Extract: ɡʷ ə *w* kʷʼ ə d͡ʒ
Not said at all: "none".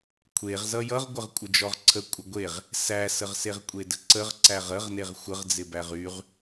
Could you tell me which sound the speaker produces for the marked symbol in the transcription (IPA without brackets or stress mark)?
ʁ